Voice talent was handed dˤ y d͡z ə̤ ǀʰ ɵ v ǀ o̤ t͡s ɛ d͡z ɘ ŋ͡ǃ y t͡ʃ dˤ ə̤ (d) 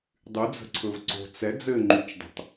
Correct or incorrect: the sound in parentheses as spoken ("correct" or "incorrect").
incorrect